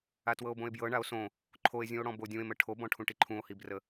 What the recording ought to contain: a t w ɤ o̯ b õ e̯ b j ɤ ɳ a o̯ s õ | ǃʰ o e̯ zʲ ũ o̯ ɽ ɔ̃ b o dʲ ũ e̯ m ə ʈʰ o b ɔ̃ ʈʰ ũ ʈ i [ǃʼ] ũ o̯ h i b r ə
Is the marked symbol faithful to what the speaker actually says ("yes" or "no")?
no